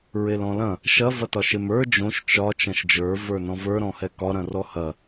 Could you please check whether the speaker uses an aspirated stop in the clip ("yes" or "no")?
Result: no